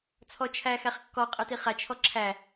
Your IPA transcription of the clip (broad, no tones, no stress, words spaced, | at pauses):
t͡sʰɔt͡ʃʰæ xæχkːɔ qʼɨtiχa t͡ʃʰɔǁʰæ